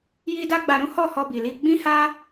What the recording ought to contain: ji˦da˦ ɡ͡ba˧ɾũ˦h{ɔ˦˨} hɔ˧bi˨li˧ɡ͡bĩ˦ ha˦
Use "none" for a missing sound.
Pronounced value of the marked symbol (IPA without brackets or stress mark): ɔ˦˨